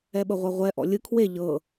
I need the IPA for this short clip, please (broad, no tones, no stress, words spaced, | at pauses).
ɛɓɤʁʷaʁʷɛ ʔɔ̰lʲɯ kʰwe ʎɤ